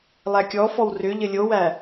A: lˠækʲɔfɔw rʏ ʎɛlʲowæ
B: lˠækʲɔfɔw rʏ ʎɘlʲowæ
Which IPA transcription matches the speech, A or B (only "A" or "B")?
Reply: B